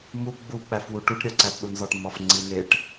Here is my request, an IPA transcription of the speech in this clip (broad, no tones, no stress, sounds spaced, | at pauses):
m u ɡ͡b u k͡p æ f w u ʈ u ʈ ɾʲ ɒ ǀ æ t ɗ u n z ɒ ʈ m ɒ f ŋ͡ǀ i n e ʈ